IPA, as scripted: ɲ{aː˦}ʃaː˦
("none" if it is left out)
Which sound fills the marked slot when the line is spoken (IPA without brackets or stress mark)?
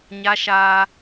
a˦